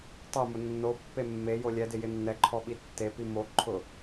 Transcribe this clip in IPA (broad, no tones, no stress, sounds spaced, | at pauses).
tˤ o m ʊ nː o pː e mː e j o lʲ ɛ d ɪ j ɪ nː ɛ ǃʰ ɔ ɓ i tː e p i m o ǃʰ ʊ